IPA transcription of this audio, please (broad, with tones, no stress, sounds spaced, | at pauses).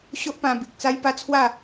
ɕ o˦ ʔ p ã˧ b i˨ k̚ t͡s a˦ j p a˦ t͡sʰ w a˥˧